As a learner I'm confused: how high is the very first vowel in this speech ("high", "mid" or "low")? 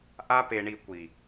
low